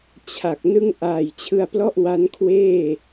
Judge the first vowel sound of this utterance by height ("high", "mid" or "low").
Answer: low